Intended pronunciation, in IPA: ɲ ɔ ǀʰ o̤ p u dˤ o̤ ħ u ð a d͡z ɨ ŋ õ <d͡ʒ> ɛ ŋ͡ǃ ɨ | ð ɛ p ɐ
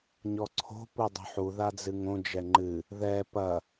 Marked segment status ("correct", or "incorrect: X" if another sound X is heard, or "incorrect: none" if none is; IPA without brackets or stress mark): correct